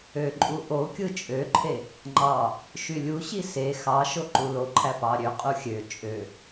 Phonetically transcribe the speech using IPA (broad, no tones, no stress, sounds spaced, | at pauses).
ø ǃʼ u ʔ o kʲ ɯ t͡ʃʼ ø ǃʰ e | ŋ͡ǃ ɑ | ʃ y lʲ u ɕ i s e x ɑ ʃ o ǃ u l o ǃʰ æ p ɑ ɾʲ ø qʼ u xʲ ø t͡ʃʼ ø